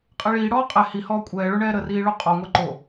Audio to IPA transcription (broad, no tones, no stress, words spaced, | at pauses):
qʼeɭiːɽɔː qʼɛ hihɔː kʷʼɛːɭo ɳɛːɾəriː ɭoqʼɔŋʷɛ ǃo